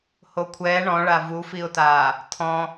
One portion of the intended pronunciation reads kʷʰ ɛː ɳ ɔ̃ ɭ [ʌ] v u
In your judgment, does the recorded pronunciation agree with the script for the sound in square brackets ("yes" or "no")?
no